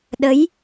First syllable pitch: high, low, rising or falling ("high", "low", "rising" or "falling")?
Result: rising